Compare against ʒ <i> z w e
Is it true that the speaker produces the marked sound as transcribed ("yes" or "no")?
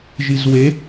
yes